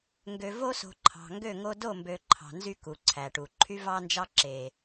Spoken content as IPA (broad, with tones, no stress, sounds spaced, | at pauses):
ŋ ɡ ø˨ v o˦ s o̤˨ ǃʰ ɑ̤˨ ŋ ɡ ø˦˨ ŋ o˦ d o˦˨ m b ø˨ ǃʰ ɑ̤˨ n z y˦ k u˨ ǀʰ æ˨ ʈ u˨ ǃʰ y˦ v ɑ˦ n d͡ʒ ɑ˦ ǁ e˨